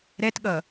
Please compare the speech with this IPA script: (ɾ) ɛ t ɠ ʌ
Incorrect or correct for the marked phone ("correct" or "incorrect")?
correct